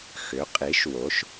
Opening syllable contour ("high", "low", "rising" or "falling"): rising